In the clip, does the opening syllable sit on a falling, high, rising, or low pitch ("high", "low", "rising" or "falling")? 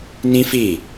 high